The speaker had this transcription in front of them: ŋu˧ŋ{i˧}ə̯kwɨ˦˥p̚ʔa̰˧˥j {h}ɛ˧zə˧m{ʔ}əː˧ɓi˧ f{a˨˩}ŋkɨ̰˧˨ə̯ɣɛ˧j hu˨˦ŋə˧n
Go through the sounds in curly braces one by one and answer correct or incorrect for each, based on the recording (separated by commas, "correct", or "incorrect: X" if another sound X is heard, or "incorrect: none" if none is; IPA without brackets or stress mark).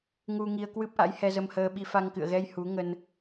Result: correct, correct, incorrect: h, incorrect: a˧